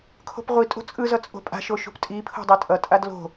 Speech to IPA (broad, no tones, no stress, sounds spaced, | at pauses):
kʰ o̤ p ʁʷ i tʼ o̤ t͡sʼ ɯ z ʌ t͡sʼ o̤ pʼ a̤ ʃ o ʃ ṳ p tʼ i pʰ o̤ dˤ i tʼ ʌ tʼ a d l o̤